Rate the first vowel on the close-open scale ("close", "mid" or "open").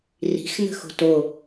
close